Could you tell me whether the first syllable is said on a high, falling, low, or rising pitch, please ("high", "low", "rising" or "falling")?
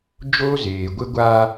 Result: high